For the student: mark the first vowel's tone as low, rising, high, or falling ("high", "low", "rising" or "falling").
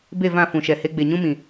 falling